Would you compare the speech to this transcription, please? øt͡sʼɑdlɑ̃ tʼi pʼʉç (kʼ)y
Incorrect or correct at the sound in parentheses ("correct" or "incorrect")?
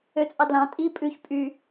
incorrect